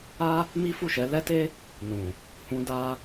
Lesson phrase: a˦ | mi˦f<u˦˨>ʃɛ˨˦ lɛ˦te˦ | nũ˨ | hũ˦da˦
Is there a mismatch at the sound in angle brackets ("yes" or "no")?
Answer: no